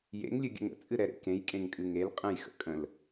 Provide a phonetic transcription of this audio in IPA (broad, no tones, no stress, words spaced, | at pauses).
jḛŋlʲɨɡʲə̰ŋ ə̰t͡sʼɨɾɛɾḛ kẽjkʼẽŋkʼɨ ŋel qʼə̃jxə̰ kʼə̃l